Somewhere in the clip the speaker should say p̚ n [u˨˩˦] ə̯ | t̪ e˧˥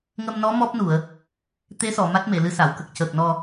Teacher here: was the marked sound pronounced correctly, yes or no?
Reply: no